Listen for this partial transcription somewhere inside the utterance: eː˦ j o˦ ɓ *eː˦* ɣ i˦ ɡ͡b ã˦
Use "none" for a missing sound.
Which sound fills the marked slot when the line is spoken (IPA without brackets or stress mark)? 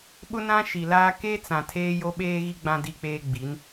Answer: eː˦